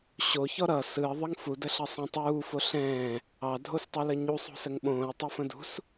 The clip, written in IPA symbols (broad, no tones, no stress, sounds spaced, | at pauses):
ɕ o ç ɔ ɾ ʌ s ɯ ə̯ ðˤ ə ŋ f u d ə ɬ ɐ sˤ ɛ̃ tˤ uː f o ɬ ɛ̃ː | ɑ dʱ o s tˤ ɯ l ə ɲ u sˤ ṳ s ə ŋ ɓ õː ə̯ tˤ ʌ f ə̃ d ṳ s